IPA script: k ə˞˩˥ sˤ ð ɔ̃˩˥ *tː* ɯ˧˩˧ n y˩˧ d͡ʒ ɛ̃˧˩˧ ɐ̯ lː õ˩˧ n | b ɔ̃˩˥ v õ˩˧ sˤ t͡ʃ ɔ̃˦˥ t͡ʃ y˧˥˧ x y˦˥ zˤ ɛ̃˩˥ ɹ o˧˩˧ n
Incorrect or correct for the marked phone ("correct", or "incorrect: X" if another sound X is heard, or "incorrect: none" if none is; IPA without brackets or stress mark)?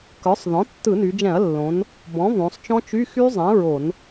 correct